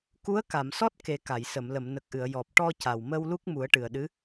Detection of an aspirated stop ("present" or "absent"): absent